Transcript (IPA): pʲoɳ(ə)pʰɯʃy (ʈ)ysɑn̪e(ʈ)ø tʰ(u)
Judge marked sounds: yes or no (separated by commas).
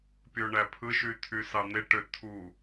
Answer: no, no, yes, yes